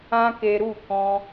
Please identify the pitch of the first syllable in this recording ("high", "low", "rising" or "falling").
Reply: high